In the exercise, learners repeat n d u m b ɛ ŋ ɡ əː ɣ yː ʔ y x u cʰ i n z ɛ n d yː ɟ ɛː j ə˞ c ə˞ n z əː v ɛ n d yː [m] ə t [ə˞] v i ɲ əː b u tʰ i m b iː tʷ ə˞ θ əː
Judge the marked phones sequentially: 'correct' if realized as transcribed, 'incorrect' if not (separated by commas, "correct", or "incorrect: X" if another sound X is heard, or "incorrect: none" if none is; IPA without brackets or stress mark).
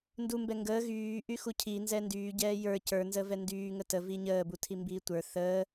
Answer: incorrect: ŋ, incorrect: ə